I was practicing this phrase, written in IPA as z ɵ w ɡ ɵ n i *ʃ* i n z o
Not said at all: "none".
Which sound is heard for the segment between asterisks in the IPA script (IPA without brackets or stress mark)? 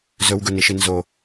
ʃ